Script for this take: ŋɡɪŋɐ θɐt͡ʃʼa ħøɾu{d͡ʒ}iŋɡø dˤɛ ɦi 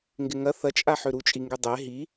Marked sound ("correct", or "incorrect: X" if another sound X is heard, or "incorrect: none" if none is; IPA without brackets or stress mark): incorrect: t͡ʃʼ